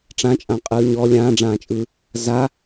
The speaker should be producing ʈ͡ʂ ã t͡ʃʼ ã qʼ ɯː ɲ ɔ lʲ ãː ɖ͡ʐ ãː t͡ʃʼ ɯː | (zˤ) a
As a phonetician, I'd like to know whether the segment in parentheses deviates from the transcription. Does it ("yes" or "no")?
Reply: yes